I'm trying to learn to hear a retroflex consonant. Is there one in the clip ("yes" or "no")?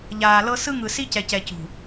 no